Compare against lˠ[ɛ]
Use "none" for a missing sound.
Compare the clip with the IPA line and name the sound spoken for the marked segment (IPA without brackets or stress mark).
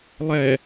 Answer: ɛ